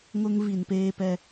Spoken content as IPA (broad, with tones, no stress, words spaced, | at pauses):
ŋʊ˦ŋ vi˨npeː˦pɛ˦